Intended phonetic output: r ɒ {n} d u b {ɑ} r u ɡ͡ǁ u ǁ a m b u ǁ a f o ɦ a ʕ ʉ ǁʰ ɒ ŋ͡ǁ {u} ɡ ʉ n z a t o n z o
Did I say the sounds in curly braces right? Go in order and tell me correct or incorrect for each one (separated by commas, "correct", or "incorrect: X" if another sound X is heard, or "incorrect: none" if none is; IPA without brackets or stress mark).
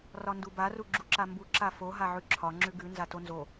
correct, incorrect: a, incorrect: ʉ